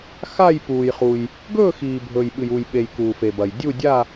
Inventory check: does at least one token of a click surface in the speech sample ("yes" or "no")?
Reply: no